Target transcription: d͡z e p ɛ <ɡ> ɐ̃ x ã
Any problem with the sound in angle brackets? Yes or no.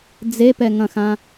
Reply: yes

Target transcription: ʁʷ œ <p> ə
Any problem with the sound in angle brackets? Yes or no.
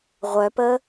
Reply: no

